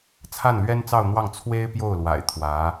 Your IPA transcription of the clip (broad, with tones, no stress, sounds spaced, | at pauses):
t͡sʰ a˥˩ n l ɥ ɛ˥ n t͡s ɑ˥˧ ʊ̯ n̪ w ɑ˥˩ ŋ t͡sʰ w e˥ ɪ̯ p j o˥˩ ʊ̯ l w a̰˨˩ ɪ̯ t̪ʰ w ä˧˥